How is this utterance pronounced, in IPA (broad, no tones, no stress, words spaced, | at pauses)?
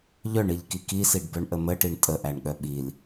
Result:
ʎœɳiʎki kisiɖbœɳʔə məʈiɳ tʼəʔæɳɠœ ɓil